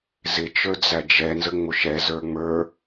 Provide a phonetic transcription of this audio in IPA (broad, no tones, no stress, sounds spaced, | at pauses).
z ɪ t͡ʃ ə˞ d͡z æ d͡ʒ ɛ n z ə ŋ͡m ʊ ʃ ɛ z ə˞ ŋ͡m ə˞